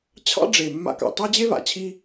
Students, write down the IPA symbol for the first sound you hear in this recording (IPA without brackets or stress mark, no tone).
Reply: t͡ɕʰ